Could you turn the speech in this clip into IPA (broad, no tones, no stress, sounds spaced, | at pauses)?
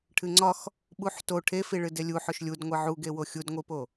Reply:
ʈʰ ɨ ŋ͡ǀ ɒ x | ɓ u ħ t o ʈʰ e f i ɭ ɨ d e lʲ u ħ ɵ ʃ lʲ u d ŋʷ i ʕ u ɡ e w o xʲ u d ŋʷ i p o